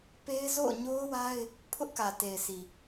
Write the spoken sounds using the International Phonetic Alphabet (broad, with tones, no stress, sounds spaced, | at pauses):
p e˦ ɪ̯ z o̰˦˨ ʊ̯ ɲ o˦ ʊ̯ w a˦ ɪ̯ | pʰ ʊ˦ ʔ k ä˨ t e˨ ɪ̯ s i˨